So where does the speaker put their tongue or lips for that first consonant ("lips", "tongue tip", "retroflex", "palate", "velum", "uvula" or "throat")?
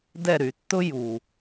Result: tongue tip